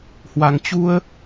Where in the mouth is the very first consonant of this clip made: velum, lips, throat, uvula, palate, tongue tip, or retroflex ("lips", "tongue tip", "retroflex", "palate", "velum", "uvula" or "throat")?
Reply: throat